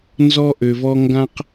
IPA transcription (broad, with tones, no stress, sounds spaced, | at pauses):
n z ɔ˦ ʔ ø˨ v ɔ˦ ŋ ɡ ã˦ q